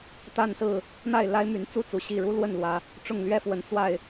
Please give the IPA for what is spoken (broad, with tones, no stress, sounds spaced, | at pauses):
t̪ a˥˨ n s ɹ̩˥˨ | n̪ a˥˨ ɪ̯ l a˦ ɪ̯ m y˨˦ n t͡s u˥˨ t͡s u˨˦ ɕ i˥˨ ɻ u˦ l w ə˥˨ n l w ä˨˦ | ʈ͡ʂ ʊ˥˨ ŋ l ɥ ɛ˥˨ f w ə˨˦ n t͡s w a˥˨ ɪ̯